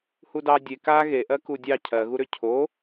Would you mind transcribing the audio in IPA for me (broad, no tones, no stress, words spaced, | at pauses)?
hudɑ dʲe ka ɣeʔɜku dʲɑ cʰɜɣuɾʏ cʰo